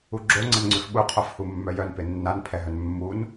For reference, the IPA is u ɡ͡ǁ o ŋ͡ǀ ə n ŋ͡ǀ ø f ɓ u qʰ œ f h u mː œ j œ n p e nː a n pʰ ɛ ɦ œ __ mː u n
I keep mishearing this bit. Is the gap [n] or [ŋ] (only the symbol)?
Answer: n